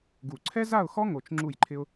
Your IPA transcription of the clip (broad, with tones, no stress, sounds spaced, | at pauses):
ɡ u˧˩ ǀʰ ɛ˥ z a˥˧ ʊ̯ x ɔ˥ ŋ o˧ t͡ʃ ŋ͡ǁ u˥˧ j ǃʰ ɪ˥ ʊ̯